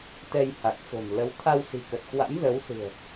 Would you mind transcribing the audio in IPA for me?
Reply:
t̪ ɛ˧ j h a˨˩ k̚ f o̤˨˩ n l ə˨˦ w t̪ʰ a˧ w s i̤˨˩ k ə˨˩ t̚ k w a̰˧˥ m z ə˨˦ w s ɨ̤˨˩ ə̯

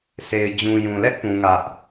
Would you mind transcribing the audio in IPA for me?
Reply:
sʰ e˨ ɪ̯ d͡ʑ ũ˨ j ũ˨ l ɛ˦ ʔ p ũ˦ ŋ ä˦ ʔ

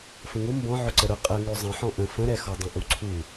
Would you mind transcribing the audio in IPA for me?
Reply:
f ə̃ ŋ ʊ m b ɔ̃ ʕ ʊ ǀ ə ɾ ʊ qʼ ə ŋ ø zˤ ə̃ ħ ɔ̃ ʔ ə̃ f ə̃ ɾ ɛ x ɔ dˤ ə̃ ʔ u ǀʰ u

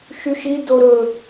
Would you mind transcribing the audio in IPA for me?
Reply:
ʃ y ʃ i d o ɾ ɵ

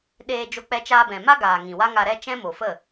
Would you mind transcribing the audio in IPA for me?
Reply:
ɗ eː˧ d͡ʒ o˧ k͡p ɛ˧ t͡ʃ aː˧ b ɛ̃˨ m a˦ ɡ aː˨ ŋ ĩ˨ w a˦ ŋ a˧ ɾ ɛ˦ t͡ʃ ɛ̃˦ m o˨ f ə˦˨

